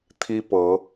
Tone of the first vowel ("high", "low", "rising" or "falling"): high